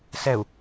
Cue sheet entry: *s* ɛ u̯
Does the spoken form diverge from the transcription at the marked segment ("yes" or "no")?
no